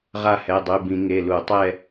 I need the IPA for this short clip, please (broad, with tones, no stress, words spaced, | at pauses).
ʁa˥˧hɛ˩˧˩dˤy˩˧˩bĩ˧˩˧ ŋe˩˧˩lu˧˩˧ tˤɛ˥˧